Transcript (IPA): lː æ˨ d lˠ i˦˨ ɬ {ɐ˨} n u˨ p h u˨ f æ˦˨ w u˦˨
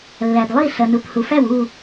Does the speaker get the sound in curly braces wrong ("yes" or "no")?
no